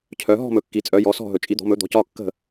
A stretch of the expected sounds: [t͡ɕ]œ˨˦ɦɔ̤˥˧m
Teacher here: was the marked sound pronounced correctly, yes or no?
no